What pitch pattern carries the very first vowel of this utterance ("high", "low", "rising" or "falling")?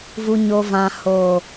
low